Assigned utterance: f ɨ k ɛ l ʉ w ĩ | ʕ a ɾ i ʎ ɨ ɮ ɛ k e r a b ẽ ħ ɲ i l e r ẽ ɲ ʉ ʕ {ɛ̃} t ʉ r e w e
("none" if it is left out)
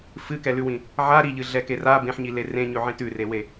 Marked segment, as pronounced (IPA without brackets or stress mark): ẽ